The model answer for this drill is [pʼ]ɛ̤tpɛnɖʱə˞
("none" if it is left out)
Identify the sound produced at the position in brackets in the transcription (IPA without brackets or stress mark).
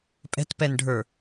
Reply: pʼ